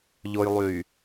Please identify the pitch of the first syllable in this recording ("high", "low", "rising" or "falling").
low